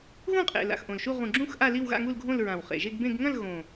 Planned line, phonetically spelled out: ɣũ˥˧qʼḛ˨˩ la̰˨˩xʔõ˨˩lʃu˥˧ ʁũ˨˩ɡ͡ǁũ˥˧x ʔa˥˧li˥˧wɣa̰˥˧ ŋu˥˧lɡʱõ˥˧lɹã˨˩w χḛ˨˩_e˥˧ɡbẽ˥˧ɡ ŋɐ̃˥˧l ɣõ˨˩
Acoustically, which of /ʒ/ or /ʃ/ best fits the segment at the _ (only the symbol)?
ʒ